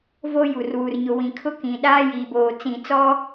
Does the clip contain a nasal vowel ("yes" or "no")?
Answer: yes